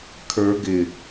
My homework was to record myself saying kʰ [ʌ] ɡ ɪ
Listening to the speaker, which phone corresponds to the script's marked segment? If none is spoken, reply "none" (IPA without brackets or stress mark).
ə˞